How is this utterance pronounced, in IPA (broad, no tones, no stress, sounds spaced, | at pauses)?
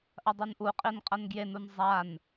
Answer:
ʔ ɐ dˤ u n ʔ u qʼ i n qʼ ɐ n ɡ j e n u n zˤ a n